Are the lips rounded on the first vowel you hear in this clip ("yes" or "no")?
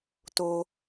yes